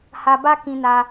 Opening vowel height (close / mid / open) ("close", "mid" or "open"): open